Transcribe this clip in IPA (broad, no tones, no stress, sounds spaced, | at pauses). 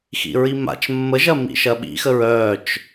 x ḭ ɹ i m a̰ t͡ʃ mː ə ʒ ɐ m ḭ ʃ ɐ ɓ ḭ x ə ɹ œ t͡ʃ